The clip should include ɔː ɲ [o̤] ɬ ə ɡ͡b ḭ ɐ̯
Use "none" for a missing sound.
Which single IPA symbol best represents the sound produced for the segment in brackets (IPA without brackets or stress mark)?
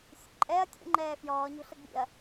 o̤